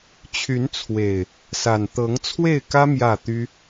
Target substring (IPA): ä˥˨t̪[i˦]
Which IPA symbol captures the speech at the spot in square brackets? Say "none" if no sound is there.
y˦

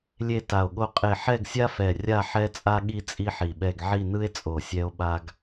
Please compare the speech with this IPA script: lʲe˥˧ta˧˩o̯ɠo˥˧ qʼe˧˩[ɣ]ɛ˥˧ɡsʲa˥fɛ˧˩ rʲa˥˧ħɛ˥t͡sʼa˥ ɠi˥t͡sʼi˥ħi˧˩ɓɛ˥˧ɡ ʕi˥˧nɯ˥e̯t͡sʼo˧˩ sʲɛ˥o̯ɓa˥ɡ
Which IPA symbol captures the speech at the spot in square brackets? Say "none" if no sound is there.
ħ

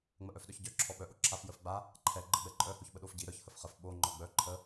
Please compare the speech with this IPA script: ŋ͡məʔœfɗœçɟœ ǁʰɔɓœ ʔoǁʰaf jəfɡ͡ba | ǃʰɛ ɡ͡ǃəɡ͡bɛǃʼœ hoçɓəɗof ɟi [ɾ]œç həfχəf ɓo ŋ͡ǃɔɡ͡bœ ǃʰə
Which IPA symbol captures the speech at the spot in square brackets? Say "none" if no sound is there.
ɾ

